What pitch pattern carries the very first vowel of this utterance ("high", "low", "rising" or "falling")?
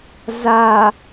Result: low